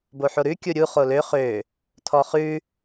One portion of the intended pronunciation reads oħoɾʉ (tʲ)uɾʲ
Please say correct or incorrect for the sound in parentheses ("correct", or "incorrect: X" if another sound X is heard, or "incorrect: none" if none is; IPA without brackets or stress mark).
incorrect: kʲ